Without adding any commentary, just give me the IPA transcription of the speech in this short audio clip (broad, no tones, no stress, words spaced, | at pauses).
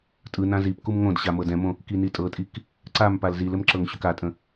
tʼɯ nãzipkum ŋõdɕa mɤdɛ̃mõ | kinitʼɤtʼik | ǀam palzilɘm ǁɤŋɕʏkatʼə̃